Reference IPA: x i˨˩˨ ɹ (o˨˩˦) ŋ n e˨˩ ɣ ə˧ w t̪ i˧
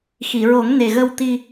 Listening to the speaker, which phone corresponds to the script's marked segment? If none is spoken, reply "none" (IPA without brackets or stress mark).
o˨˩˦